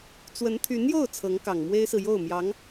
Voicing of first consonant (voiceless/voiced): voiceless